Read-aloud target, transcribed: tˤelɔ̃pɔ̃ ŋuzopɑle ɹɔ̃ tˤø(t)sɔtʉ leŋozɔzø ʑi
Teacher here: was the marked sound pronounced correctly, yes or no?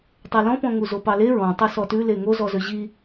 no